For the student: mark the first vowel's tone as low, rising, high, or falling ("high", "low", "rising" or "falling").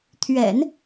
low